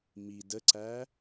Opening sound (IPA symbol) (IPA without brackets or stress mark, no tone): m